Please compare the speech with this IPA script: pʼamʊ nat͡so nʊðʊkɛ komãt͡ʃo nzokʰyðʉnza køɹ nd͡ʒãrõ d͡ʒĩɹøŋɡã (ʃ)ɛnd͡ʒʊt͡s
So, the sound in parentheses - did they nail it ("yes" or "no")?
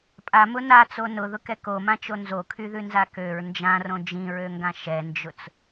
yes